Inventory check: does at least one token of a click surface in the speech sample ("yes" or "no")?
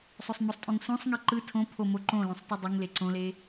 yes